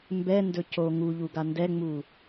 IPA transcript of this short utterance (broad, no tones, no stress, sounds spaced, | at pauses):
m b ɛ n d ɵ c o ŋ u ʎ u ɡ a n d ɛ ŋ͡m u